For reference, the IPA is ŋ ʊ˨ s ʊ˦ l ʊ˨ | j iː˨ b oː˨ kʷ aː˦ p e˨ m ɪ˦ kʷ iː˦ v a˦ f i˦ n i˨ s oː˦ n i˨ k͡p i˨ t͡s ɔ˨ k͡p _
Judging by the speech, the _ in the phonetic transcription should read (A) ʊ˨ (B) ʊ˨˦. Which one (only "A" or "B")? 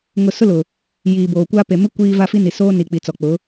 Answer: B